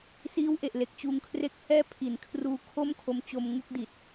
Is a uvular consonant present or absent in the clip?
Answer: absent